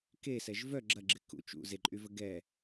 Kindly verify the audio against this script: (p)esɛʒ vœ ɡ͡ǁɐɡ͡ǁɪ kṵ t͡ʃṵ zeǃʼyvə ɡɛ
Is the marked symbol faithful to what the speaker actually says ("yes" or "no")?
no